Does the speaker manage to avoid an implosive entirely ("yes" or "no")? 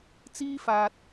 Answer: yes